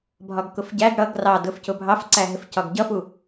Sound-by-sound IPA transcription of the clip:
bʱɒɡkʊfɟæɡ ɽʌɡ rɑdʊfcʊ bʱɑfǀæɦɪf cɒɡɟʌfu

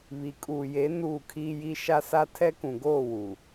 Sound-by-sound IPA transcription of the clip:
βi˨kʼuː˨je˨˦ nuː˦˨kʰiː˦ji˦ ʃa˦sa˦ tʰɛ˦kũ˨ ɡoː˦˨ wu˨

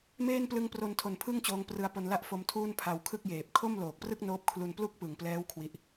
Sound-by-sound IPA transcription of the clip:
meː˥˩nplɯ˦˥ŋpro˧ntʰo˨˩n pʰɯ˥˩ŋt͡ɕoː˧ŋ prɯ˧a̯po˧nla˥˩ʔ fo˧mtʰuː˥˩n pʰa˧wkʰɯ˥˩k̚jeː˨˩p̚ kʰo˥˩mloː˨˩k̚prɯ˥˩k̚ noː˦˥p̚kʰlu˧n plu˥˩k̚pɯ˨˩ŋplɛː˦˥w kʰwi˥˩ʔ

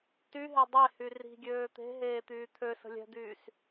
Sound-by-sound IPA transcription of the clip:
tyɦe dˤe hyri̤ɡʲøː t̪e̤ɦeː t̪yːt̪ʰøsə̤ lʲɛ̤d̪yːs

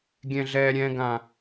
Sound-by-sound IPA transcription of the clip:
ɡʲɛ̃ɮɛːɾʲɛ̃ɡã

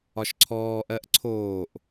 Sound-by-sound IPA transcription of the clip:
ɒʃǀʰɔːʔɜʔ ǀʰoːʔ

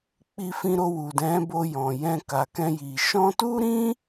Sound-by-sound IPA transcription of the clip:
k͡pi˧fĩ˧ɾo˧ wu˨dɛ̃˨˦bo˧ jɔ̃˨jɛ̃˧ ka˨kɛ̃˧ji˨ ʃɔ̃˧tu˦ɾĩ˦

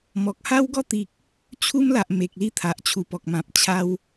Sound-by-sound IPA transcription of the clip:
mɔ˨k̚ ha˦wɡɔ˥˧t̪i˨k̚ | t͡ɕʰu˦mla˨ʔ me˨k̚li˥˧t̪ʰa˨ʔ t͡ɕʰu˨˩pɔ˨k̚mã˨p̚ t͡ɕʰa˧w

